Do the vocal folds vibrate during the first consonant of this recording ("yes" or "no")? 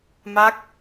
yes